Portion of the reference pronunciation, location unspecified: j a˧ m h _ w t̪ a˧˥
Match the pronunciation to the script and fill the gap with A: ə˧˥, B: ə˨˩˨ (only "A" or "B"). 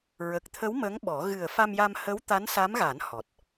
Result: A